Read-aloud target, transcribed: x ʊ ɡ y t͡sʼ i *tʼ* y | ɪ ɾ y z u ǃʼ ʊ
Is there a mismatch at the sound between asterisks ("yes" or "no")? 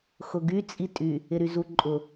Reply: no